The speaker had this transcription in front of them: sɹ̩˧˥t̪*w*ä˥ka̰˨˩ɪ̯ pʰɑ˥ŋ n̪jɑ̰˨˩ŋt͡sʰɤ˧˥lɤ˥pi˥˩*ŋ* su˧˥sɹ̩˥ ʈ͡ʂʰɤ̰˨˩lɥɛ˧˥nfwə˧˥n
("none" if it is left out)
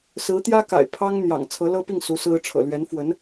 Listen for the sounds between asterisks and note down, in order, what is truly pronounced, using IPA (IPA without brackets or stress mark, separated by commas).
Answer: j, ŋ